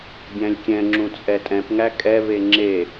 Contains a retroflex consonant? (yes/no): no